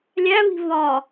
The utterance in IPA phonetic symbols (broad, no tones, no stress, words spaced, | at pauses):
lʲæβi̤ vɒ